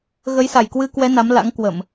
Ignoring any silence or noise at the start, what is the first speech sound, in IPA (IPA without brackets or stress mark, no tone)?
ɣ